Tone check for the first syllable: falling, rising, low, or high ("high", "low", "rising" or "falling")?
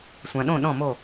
low